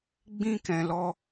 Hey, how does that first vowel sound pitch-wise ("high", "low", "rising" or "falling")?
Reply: high